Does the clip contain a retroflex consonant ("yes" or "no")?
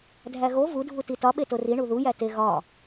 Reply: yes